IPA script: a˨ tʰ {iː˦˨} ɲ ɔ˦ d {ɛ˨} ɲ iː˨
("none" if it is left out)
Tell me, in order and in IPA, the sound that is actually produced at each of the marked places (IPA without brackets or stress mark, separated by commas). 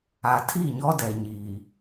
i˦˨, ɛ˨